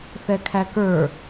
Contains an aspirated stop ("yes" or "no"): yes